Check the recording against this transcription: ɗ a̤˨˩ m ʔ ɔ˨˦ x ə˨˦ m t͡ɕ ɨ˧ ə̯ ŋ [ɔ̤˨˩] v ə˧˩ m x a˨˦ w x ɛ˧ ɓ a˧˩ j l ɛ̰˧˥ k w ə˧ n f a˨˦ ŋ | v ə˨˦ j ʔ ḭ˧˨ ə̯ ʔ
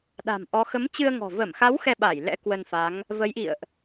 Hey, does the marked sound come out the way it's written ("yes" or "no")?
yes